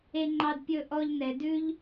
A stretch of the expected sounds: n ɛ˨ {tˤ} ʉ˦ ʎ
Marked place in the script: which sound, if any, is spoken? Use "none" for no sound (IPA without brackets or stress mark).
d